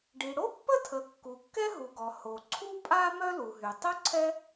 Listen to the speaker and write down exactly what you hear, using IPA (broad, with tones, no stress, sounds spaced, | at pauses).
ɖ i˩ ɽ o˥ pː ə˥ tʰ ə˩ kː u˩ kː ɛ˥ ɦ u˩ ɡ ɔ˩ h o˩ ǀʰ u˥ pʼ a˥ m œ˥ l u˩ ɦ y˩ tˤ œ˥ ǀʰ ɛ˥